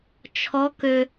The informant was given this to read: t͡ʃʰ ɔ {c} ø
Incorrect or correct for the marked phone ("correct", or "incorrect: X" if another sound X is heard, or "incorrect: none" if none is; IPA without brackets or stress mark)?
incorrect: k